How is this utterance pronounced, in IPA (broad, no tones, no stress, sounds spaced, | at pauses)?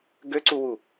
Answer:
ɡ ø ǀ u w u